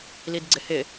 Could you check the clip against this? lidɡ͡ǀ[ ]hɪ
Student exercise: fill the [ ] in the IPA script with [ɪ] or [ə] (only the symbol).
ɪ